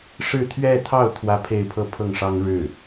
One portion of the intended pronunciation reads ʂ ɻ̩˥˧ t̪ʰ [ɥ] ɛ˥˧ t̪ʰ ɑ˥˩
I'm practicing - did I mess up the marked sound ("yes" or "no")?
no